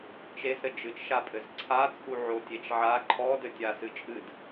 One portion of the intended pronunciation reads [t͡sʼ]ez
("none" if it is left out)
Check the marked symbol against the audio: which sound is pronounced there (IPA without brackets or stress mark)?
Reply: t͡ʃ